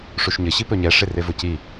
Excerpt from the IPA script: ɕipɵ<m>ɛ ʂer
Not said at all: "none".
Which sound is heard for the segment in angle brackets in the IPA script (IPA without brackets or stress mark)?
ɲ